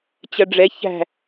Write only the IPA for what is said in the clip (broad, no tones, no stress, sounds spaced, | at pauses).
t͡ɕ ɐ ɖ͡ʐ ɛ ç æ̤